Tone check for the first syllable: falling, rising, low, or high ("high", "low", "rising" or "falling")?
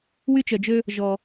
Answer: high